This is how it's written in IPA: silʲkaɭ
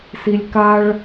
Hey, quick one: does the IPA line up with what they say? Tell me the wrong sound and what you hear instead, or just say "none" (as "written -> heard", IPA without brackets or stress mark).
none